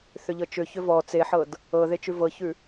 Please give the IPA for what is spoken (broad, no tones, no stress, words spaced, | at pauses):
θʏʎɤt͡ʃʏ çʏvɔ t͡seħɤd | ɤðet͡ʃʉ vɤçʉ